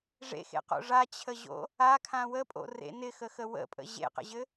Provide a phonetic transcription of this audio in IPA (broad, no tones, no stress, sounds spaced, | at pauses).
ʐ ḛ x ḛ q o̰ ʐ a t͡ɕʰ ə ʑ o̰ | a kʰ ã w ə pʼ o̰ r ḛ n ɪ x ə x ə w ə̰ pʼ ə̰ ʑ ḛ q ə̰ ʑ ɘ